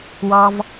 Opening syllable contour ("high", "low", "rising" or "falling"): low